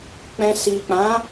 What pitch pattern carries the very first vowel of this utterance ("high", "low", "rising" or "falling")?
low